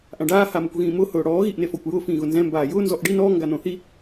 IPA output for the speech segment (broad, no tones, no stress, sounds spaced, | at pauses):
ʔ ã ɖ aː h a m ʊ kʷ ɣ ĩː m ʊː h ʊː ɽ ɔː ɣ i ʔ n e f ɔ kʷ j ʊː f ĩː ɣ ʊ n z ɛ̃ m b aː j ʊː n z ɔ ʔ ɖ i n ɔː ŋ ɡ a n õ θ i